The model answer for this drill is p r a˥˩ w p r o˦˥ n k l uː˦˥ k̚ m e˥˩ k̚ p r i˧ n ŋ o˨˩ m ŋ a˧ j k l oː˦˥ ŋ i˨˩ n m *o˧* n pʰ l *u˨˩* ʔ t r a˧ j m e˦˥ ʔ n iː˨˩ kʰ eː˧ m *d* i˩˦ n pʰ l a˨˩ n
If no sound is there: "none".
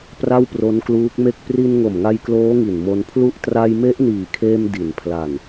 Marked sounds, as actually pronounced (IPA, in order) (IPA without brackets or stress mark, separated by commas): o˧, u˥˩, d